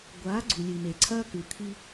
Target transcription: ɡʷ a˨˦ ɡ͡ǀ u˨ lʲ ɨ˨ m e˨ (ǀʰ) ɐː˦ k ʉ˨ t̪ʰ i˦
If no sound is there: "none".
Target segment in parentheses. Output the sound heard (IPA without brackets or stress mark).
ǀʰ